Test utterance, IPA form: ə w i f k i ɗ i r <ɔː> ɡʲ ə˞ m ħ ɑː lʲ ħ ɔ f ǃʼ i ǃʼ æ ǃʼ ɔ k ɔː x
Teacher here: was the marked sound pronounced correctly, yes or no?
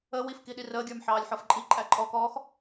no